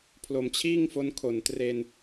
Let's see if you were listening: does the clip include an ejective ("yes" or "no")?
no